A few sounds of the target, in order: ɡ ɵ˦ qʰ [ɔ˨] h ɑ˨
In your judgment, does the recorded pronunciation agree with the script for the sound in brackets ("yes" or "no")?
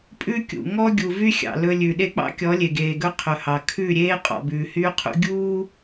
no